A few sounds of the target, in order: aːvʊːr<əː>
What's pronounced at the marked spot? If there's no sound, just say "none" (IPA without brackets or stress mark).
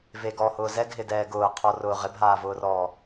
ɔː